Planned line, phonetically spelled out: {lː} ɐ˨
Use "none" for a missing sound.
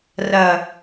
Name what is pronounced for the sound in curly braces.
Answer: r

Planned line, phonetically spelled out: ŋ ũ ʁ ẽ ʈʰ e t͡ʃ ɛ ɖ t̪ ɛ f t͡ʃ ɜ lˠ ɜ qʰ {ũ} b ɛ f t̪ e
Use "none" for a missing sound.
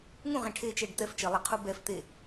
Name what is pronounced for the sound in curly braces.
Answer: u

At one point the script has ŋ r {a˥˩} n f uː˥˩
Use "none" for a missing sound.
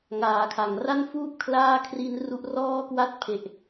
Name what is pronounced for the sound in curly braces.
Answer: a˥˩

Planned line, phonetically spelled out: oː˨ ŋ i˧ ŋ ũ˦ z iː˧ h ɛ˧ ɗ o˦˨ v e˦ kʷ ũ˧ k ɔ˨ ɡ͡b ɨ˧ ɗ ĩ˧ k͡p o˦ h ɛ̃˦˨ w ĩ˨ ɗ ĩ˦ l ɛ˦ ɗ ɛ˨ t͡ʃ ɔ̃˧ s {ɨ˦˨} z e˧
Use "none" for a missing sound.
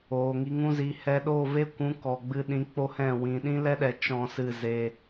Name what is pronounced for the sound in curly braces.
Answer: ɨ˦˨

